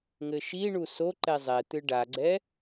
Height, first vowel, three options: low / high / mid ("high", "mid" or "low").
mid